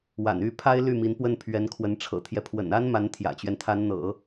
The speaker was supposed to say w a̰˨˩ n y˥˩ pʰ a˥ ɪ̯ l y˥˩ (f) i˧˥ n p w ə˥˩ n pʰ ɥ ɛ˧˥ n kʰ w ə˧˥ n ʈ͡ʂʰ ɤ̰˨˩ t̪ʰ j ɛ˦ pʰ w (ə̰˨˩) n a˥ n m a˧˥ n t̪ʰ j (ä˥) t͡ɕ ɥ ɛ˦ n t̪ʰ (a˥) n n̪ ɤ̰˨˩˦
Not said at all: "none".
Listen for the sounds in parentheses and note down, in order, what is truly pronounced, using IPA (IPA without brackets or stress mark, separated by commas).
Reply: m, ə̰˨˩, ä̰˨˩, a˧˥